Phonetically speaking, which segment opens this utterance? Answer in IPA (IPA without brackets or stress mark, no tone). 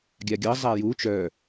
ɡʲ